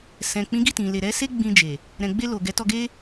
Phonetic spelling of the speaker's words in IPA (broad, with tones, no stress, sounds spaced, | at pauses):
s ɛ̃˨ k͡p ĩ˨˦ ɡ i˦˨ t ĩ˨ l e˨ ɾ ɛ˨˦ s e˦ ɡ͡b ĩ˧ d͡ʒ e˨ | ɾ ɛ̃˨ ɡ͡b e˧ l o˨ ɡ ɛ˨˦ t ɔ˧ ɡ e˦